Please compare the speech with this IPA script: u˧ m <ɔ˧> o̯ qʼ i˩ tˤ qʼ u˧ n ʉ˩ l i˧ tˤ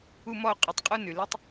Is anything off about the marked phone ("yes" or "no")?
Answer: no